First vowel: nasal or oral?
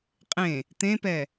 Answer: nasal